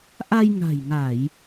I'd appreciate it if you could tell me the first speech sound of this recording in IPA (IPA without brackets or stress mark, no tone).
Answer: ʔ